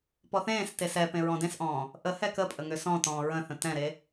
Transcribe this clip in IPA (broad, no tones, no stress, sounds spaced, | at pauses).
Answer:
p ɔ θ ẽː s t e s ɛ p ẽ ɹ ɔ̃ d ẽ s ʔ ɔ̃ː | ʔ ə h ɛ k ə pʼ ə ŋ ʏ s ɔ̃ t ɔ̃ː ɹ ə̃ θ ə̃ t ɛ̃ ɾ e